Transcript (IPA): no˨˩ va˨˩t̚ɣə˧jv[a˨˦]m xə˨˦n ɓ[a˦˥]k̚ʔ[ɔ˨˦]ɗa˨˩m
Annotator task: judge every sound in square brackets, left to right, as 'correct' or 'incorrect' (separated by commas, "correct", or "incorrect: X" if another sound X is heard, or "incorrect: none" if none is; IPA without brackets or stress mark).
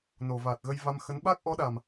incorrect: a˧, correct, correct